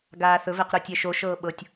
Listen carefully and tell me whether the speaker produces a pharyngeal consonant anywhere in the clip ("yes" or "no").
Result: no